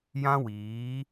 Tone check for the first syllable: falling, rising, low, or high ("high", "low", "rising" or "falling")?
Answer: high